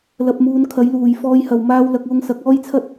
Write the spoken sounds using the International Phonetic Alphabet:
l ɐ˧ p̚ m uː˧ n kʰ ɐ˨˥ j l uː˨ j f ɔː˥ j h ɐ˧ w m aː˥ w l ɐ˧ k̚ w ʊ˧ ŋ s ɐ˨˥ k̚ ɔː˥ j t͡sʰ ɐ˥ t̚

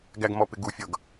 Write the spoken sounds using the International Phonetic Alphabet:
ɡ æ ɡ m ɔ p ɪ ɡ u fʲ ʌ ɡ

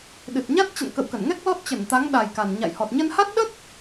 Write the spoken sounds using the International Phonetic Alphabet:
ɗ ɨ˨˩ t̚ ɲ a˦˥ t̚ t͡ɕ ə̰˧˨ n k ə̰˧˨ w k ə˧˩ n ŋ ɛ˦˥ k̚ l ɔ˦˥ t̚ t͡ɕ ə˧˩ n t̪ a˨˦ ŋ ɗ a˨˩ j k a˨˩ n ɲ a̰˧˨ j h ɔ˨˩ t̚ ɲ ə˧ n h a˦˥ t̚ ɗ ə˦˥ t̚

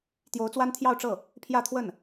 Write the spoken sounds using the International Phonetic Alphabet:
t̪ j o˧˥ ʊ̯ t͡s w a˥ n t̪ʰ j ɑ˥˧ ʊ̯ ʈ͡ʂ ɤ˥˩ | pʰ j ä˥˧ t̪ʰ w ə˥˩ n

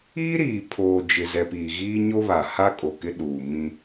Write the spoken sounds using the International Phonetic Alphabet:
iː˦ ɾ iː˨ pʰ oː˨ d͡ʒ ɪ˨ z ɛ˨ p iː˨ ɣ iː˦ ɲ o˦ β a˨ h a˦ kʼ o˨ k ɪ˦ ɗ uː˨ m ĩ˦

